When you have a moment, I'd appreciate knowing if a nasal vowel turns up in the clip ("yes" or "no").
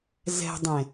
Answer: yes